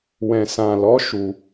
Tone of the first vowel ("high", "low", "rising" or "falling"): low